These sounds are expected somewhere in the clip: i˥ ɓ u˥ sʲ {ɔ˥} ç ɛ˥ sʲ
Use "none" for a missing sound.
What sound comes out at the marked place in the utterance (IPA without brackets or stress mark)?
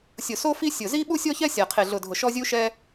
ɔ˥